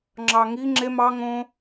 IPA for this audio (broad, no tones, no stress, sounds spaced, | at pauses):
ŋ͡ǁ ɑ ŋ i ŋ͡ǁ e m ɑ ŋ õ